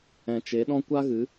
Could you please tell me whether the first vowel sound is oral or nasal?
nasal